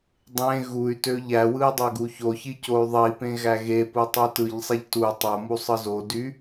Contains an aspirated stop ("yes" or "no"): no